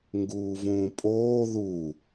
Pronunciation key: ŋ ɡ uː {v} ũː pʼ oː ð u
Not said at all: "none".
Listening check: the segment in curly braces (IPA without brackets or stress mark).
v